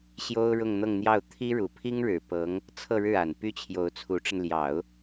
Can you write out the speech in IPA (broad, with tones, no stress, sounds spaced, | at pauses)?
ɕ j o˥ ʊ̯ ɻ ʊ˥˧ ŋ n̪ ɤ˥˧ ŋ n̪ j ɑ˥˩ ʊ̯ t̪ʰ i˥ ɻ u˨˩ pʰ i˥ ŋ ɻ ɻ̩˨˩ p ɤ˧˥ ŋ | t͡sʰ ɤ˥˧ ɻ ɻ̩˥˩ a˨˩ n p y˥ t͡ɕʰ j o˧˥ ʊ̯ t͡sʰ u˧˥ ʈ͡ʂ ə˧ n l j ɑ˨˩˦ ʊ̯